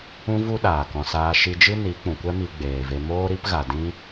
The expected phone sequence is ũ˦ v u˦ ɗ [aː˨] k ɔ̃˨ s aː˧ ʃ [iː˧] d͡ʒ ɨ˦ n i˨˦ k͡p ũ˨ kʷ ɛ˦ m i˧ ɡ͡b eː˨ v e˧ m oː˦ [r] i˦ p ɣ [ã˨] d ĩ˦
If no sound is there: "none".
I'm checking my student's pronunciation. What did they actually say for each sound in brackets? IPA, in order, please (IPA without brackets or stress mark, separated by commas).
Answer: aː˨, i˧, ɾ, a˨